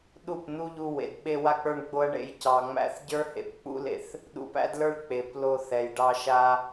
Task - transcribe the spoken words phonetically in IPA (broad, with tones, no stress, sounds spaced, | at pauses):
ɗ u˦˨ p n̪ u˦ ʎ u˧ w ḛ˨ d ɓ e˧ w a˧ k͡p ə˞˧ ɳ ɡ͡b o˦ ɐ̯ ɳ ḛ˧ j c ɑ˨ ŋ͡m æ̰˧ θ ɟ ə˞˦ h ḛ˨ p k͡p ṵ˦ l ḛ˨ θ | ɗ ṵ˧ p æ̰˦ d l ə˞˦ ɭ k͡p e˨ p l o˧ θ ɛ˨ j ɖ ɑ˧ ʃ a˧